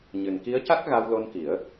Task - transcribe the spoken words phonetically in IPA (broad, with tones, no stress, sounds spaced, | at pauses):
ɲ ɨ˨˩ n k i˧˥ ə̯ c a˦˥ k̚ ɣ a˧ w l o˧ n k i˨˩˦ ə̯